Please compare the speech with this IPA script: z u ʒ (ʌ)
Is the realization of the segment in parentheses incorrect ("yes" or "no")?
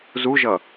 no